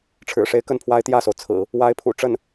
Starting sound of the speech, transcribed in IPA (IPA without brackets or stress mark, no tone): ʈ͡ʂʰ